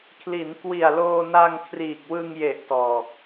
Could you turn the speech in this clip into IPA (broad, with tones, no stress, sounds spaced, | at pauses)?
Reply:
kʰ l i˩˦ n k w i˨˩ a̯ l oː˧ n a˧ ŋ kʰ r iː˨˩ k̚ w ɯ˧ ŋ j e˨˩ ʔ t ɔː˨˩ k̚